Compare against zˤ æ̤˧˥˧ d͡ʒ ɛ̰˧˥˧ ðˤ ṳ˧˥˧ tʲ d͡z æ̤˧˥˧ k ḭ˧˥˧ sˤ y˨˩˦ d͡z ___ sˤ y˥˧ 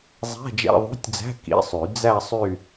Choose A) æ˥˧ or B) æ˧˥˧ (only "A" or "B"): A